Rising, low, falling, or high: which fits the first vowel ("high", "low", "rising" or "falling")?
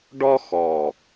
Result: high